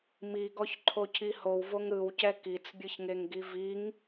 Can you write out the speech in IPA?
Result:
miɡɔçǃʰocʰi howvoŋ ɾɯwcɛ kit͡sbʲɯçŋeŋɡi viŋ

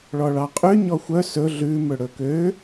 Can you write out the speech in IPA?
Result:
ɭɔɭɑqʼʉ ɲɔxʷœ sɵ ɮʉ mɵɽɵkø

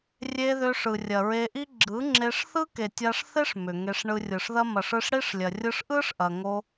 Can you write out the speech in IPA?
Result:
rʲe˧ ðʏ˧ʂɯ˨rʲɐ˨ ɹe˧ʔi˦ ɡ͡ǁɯ˨˦ŋ͡ǁe˧ʂ θɯ˦ke˨tʲa˧ʂθe˦ʂ mʏ˨ŋe˧ʂ ɳɯ˧rʲɯ˨ʂðɐ˦ mɐ˨ʂɯ˧ʂ ɽi˦ʂ lʲɐ˨rʲɯ˧ʂʔɯ˦ʂ ʔɐ˨ŋo˧

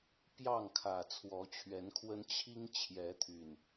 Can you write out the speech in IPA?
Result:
pjɑ˥˨ŋkʰä˨˩ t͡sʰwɔ˨˦t͡ɕʰɥɛ˨˦nkʰwə˦n t͡ɕʰi˦ŋ t͡ɕʰjɛ˨˦t̪ʰy˨˩n

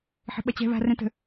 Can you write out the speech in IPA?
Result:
ħə̤ɓɐt͡ɕɛ̤ βa̤ rɛ̃tə̤

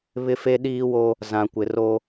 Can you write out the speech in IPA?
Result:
βɪ˦fe˦ ɗiː˦wo˦ | zã˨kʷɪ˨ro˦

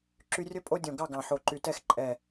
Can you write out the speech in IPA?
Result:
ǁy˦ rʲɵ˦ pʼo˦dʲõ˨˩ ɡɑ˥˨ɡɑ̃˨˩ ħo˨˩ǃy˨˩tɛ˥˨x ǃʼɛ˨˩

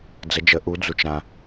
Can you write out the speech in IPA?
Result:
d͡zə˨˦d͡ʒə˨˦ ʔu˨˦d͡zu˨t͡ʃ ɾã˨

